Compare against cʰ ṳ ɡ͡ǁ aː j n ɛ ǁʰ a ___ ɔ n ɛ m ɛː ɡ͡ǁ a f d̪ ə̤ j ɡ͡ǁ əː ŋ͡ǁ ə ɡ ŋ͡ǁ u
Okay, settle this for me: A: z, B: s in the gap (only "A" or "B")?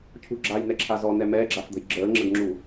A